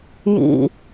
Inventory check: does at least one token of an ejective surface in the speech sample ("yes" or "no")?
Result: no